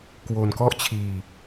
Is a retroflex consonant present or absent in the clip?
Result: absent